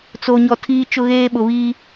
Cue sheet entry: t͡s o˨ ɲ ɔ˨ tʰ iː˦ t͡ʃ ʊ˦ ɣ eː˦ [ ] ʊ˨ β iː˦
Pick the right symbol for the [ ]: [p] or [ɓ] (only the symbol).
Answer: ɓ